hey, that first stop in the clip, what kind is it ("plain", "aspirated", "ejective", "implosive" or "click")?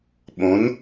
implosive